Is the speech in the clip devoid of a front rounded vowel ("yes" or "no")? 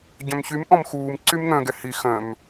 no